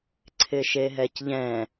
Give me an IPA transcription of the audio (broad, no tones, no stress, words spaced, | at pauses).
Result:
ǀʰɪʃeɦɛcʎɛ̃